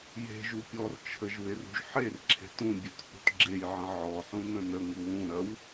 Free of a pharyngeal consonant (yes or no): no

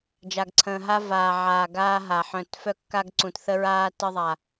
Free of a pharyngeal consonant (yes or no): no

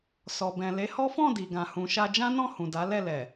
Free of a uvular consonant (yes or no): yes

